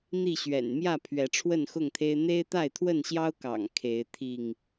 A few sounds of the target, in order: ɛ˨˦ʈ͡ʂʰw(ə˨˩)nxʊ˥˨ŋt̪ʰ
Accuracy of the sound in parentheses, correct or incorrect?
incorrect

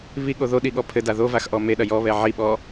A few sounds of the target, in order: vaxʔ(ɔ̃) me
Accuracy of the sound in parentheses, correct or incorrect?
incorrect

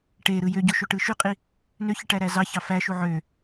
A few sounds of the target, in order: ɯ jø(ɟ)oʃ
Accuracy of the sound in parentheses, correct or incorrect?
correct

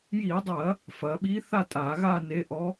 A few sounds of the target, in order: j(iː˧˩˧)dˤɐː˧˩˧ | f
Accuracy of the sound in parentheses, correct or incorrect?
correct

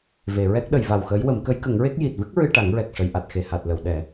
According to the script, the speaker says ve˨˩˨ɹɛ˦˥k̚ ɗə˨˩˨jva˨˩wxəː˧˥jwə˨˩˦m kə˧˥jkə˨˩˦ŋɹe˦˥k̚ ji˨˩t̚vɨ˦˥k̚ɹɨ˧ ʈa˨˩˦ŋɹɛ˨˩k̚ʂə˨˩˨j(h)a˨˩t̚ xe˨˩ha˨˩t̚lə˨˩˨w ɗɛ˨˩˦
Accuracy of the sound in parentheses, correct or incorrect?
incorrect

